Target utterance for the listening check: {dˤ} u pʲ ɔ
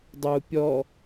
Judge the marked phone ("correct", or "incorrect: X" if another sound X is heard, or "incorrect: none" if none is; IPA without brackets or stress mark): correct